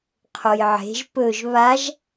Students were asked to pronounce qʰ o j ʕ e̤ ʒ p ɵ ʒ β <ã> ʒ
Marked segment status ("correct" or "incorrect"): incorrect